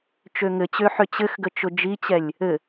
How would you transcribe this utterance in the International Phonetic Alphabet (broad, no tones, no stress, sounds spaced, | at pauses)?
t͡ʃ ø ŋ ɘ t͡ɕ ø ħ ʏ t͡ɕ ɘ x ɡ ə t͡ʃ ʊ d͡ʒ i t͡ɕ ɛ lʲ | ɘ